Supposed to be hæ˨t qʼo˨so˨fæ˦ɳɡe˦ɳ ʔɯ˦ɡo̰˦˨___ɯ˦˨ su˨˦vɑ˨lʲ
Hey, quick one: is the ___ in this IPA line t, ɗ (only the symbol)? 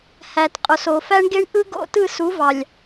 t